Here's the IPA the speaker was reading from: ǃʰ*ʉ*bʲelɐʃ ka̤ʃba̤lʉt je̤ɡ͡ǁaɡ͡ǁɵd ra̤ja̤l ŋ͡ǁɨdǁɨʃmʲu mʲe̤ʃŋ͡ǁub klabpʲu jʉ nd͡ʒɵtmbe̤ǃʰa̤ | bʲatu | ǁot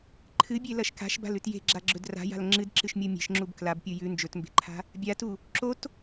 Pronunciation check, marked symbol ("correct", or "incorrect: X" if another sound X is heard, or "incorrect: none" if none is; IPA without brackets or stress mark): incorrect: ɨ